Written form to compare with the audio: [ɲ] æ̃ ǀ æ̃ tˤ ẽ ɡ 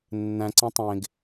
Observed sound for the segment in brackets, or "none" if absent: nː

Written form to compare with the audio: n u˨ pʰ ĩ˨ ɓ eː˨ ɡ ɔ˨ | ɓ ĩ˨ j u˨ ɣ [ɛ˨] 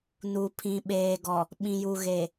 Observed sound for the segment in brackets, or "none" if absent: e˨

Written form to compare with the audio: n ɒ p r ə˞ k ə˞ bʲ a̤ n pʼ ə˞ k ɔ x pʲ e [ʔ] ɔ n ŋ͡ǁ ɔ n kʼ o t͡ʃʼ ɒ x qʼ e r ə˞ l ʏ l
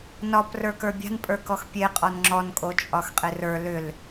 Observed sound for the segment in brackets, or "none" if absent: qʼ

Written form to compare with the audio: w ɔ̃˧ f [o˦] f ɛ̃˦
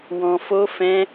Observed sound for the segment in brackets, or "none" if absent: o˦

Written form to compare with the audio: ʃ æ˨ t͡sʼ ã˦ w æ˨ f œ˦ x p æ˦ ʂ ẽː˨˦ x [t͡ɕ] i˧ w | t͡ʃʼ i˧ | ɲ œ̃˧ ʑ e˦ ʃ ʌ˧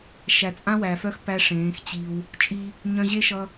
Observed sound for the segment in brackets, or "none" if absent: t͡ɕ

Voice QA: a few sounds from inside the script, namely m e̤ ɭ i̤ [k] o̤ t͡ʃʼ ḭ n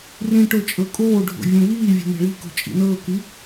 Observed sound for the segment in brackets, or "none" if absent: k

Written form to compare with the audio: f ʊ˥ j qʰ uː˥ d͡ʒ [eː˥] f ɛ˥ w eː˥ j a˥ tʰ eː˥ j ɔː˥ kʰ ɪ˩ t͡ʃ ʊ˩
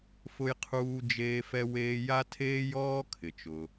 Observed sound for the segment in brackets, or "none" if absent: eː˥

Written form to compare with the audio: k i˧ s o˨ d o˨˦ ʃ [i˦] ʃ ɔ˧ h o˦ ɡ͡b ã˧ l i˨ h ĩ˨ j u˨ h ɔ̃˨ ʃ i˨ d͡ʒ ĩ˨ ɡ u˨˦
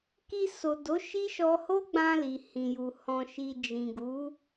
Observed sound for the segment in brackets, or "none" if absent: i˦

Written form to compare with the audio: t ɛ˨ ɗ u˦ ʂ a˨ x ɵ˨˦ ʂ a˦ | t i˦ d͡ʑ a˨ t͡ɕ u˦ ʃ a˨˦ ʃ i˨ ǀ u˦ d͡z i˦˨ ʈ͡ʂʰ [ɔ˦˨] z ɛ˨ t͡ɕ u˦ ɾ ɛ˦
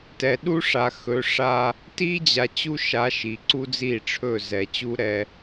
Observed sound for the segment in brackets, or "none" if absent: ɵ˦˨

